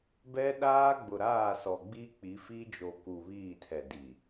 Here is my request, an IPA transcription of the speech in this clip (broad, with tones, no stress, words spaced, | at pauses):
bɛ˦ ɗaː˦ ɡ͡bʊ˨ ɾaː˦˨sɔ˨ ɡ͡bi˦k͡pi˨˦fi˦ d͡ʒo˨ku˨ βiː˦˨tʰɛ˨ di˨